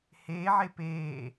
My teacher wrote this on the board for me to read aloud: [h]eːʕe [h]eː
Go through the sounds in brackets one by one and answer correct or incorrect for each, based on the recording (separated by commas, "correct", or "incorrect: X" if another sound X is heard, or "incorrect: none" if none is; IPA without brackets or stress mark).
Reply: correct, incorrect: p